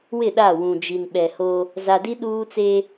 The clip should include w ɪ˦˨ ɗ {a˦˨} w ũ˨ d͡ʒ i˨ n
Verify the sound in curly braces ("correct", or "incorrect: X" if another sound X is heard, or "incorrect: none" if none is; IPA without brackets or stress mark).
correct